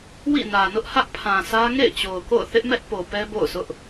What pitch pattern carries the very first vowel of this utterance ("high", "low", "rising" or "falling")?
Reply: falling